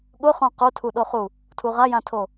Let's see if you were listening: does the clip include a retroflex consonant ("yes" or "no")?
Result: no